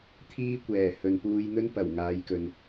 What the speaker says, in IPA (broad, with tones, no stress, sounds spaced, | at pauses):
t̪ʰ iː˥ kʷ ɛː˨˩ h ɵ˨ n p uː˧ j n̪ ɵ˥ n p ɐ˨˩ w ŋ aː˨˧ j k ɵ˨ n